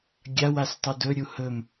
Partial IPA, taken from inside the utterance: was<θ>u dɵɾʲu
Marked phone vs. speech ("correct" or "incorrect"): incorrect